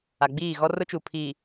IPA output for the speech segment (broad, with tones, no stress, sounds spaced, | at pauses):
a˨ ɡ͡b iː˦˨ ɣ ɔ˦ r ʊ˦ t͡ʃ u˨ pʰ iː˨